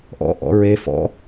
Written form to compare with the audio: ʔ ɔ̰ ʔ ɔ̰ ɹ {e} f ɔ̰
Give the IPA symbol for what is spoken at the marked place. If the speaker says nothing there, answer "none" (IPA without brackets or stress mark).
e